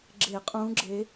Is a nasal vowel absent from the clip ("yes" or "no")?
no